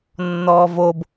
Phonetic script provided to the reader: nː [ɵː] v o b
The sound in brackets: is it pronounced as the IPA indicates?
no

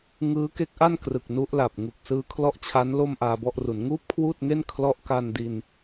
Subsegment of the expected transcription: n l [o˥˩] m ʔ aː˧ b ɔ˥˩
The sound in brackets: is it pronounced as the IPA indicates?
yes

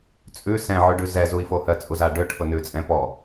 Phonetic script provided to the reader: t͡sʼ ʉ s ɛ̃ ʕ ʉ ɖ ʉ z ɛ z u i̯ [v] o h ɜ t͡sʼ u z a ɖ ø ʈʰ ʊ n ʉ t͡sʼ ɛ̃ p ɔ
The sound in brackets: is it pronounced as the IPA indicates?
no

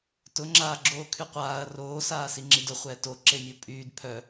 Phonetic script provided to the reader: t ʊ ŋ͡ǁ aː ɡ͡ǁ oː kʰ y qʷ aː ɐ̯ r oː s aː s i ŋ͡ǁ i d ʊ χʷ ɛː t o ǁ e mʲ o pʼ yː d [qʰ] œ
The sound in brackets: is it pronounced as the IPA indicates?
no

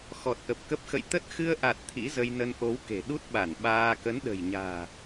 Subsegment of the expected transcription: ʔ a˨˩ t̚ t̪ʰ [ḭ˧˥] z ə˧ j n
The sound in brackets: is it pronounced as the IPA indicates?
yes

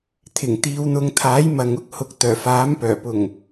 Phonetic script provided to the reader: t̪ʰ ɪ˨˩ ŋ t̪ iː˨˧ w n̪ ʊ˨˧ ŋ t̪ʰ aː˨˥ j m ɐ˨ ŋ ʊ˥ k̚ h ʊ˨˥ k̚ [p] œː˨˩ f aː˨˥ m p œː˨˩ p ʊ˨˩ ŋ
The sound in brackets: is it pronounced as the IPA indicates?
no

